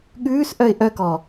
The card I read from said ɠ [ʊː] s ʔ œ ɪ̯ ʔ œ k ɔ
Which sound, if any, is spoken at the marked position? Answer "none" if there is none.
ʉː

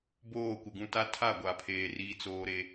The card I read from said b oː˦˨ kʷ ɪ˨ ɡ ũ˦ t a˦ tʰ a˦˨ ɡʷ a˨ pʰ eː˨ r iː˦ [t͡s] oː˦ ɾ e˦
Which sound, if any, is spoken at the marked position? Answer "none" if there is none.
t͡s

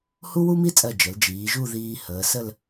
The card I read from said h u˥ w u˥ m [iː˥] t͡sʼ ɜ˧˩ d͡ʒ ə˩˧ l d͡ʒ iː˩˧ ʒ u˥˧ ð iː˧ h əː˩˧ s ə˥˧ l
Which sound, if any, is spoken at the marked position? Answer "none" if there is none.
i˥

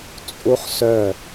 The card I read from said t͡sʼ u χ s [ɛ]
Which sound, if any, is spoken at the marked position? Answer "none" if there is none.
œ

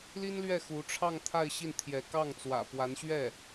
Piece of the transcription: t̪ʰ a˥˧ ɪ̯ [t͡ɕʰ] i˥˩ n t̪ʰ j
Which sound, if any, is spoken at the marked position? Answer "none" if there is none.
ɕ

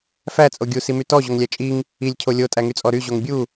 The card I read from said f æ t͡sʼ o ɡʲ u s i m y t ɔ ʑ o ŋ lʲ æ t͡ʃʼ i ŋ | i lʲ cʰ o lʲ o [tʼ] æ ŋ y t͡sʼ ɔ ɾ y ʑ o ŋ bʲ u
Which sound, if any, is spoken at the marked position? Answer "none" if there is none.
tʼ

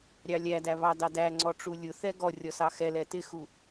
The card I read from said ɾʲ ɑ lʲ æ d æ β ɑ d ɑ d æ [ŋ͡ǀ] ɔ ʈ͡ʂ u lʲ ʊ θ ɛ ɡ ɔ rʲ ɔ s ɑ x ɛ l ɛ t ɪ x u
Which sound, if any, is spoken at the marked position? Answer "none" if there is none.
ŋ͡ǀ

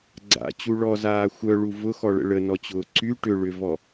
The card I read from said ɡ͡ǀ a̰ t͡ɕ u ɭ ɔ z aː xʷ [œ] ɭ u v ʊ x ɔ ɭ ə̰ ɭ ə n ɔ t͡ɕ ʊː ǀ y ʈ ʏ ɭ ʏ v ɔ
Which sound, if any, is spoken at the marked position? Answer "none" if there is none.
œ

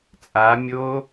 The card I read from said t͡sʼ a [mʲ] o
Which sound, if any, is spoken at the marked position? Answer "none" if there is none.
mʲ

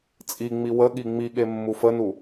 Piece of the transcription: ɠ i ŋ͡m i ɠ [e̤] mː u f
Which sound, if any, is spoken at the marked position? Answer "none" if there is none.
e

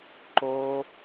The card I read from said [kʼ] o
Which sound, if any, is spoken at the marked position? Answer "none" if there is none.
ǃ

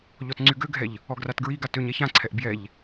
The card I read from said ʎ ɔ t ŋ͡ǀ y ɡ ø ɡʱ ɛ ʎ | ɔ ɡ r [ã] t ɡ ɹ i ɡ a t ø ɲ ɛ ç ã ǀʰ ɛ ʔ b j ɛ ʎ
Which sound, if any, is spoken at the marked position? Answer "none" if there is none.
a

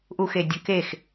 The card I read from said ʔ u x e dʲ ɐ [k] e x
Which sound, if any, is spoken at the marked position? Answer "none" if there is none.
k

